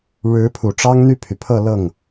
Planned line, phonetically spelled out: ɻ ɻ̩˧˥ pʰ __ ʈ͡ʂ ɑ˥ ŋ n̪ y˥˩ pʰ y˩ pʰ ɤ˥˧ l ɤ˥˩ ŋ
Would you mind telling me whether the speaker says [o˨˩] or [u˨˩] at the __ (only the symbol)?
u˨˩